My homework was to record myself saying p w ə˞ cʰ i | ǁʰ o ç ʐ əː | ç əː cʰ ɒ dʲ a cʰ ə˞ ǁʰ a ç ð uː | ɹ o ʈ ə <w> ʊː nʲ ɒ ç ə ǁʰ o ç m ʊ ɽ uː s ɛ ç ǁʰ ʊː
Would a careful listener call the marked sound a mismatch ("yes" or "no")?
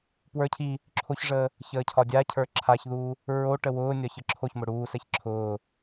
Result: no